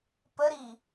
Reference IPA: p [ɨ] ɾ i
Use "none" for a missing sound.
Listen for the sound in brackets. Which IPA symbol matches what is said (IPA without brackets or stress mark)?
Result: ə